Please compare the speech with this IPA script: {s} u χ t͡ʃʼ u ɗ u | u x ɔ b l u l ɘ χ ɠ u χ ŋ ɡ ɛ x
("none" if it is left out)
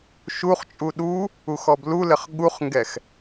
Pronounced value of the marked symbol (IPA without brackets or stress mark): ʃ